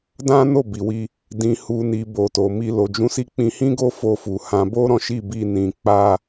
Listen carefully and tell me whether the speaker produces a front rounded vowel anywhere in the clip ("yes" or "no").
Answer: no